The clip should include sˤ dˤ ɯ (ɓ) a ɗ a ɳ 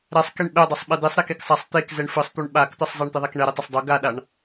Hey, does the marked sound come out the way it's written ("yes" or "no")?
no